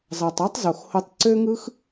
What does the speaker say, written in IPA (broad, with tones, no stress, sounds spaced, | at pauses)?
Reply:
z ɑ˨ tˤ ɑ˦ tˤ z o˨ x h o˧ tˤ ǀ ø˦ ŋ ɯ˦ x